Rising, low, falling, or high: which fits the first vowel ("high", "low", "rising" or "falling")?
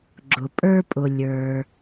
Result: low